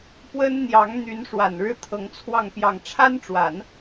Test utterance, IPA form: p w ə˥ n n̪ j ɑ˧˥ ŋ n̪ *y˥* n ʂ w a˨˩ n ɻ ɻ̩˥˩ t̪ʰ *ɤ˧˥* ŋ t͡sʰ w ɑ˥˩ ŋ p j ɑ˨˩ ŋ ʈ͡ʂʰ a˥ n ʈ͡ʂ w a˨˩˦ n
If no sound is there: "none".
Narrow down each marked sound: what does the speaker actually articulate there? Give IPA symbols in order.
y˧˥, ɤ˧˥

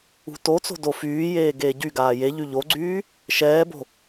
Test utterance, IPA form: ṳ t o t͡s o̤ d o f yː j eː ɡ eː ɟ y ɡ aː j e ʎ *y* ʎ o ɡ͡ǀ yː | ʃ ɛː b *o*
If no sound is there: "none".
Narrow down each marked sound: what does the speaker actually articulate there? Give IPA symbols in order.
y, o̤

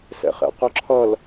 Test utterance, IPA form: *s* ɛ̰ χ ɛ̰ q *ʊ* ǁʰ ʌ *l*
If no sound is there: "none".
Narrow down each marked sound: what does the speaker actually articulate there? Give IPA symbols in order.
s, ʊ, l

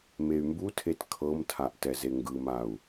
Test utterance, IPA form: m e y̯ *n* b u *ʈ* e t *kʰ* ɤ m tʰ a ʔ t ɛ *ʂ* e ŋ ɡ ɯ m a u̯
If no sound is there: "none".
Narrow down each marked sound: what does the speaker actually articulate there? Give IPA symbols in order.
m, tʰ, kʰ, z

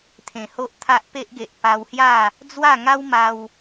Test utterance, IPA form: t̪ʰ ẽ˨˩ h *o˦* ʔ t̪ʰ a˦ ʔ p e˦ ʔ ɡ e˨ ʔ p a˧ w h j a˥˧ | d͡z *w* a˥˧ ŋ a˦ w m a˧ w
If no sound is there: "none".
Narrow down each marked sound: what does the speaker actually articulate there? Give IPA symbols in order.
o˦, w

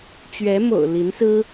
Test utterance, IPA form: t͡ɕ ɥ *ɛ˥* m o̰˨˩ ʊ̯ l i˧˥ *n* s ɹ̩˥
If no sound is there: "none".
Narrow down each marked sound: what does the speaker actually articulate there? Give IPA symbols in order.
ɛ˧˥, n

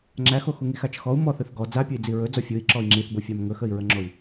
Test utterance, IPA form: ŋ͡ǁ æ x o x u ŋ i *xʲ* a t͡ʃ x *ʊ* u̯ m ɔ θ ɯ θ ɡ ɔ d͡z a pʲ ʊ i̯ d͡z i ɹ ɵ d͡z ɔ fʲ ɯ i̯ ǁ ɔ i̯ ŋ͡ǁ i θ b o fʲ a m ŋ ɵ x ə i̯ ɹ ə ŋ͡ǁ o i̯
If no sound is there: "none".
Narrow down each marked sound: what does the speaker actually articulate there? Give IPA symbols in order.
x, ɔ

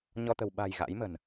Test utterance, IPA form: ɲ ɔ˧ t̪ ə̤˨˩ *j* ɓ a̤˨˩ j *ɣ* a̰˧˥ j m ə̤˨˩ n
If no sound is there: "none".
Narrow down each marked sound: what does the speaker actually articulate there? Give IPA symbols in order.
w, ɣ

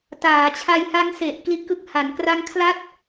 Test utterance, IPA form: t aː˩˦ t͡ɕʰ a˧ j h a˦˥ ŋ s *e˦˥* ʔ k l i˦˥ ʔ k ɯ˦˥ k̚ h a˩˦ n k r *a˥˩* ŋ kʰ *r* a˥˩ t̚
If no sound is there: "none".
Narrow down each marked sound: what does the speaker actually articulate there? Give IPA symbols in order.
e˨˩, a˦˥, l

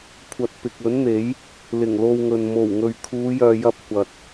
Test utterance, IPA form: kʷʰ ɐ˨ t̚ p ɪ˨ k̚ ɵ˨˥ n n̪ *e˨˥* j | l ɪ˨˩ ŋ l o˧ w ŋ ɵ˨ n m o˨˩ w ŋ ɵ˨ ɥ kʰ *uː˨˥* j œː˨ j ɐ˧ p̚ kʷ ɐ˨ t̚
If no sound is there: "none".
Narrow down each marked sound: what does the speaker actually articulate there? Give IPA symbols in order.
e˨˥, uː˨˧

